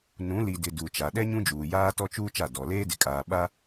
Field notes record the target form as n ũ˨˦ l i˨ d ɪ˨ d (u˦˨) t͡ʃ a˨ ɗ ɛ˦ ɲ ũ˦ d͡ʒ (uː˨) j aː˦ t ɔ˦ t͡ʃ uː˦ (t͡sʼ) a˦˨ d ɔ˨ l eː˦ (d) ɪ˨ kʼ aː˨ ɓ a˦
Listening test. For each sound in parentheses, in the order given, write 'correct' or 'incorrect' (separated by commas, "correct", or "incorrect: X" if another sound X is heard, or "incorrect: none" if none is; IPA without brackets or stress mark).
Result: incorrect: u˨, correct, incorrect: t͡ʃ, correct